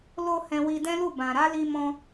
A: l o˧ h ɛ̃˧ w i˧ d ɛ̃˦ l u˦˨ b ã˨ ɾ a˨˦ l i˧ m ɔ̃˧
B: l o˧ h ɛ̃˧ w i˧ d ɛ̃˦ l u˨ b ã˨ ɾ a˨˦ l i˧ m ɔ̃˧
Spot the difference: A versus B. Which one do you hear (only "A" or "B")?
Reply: A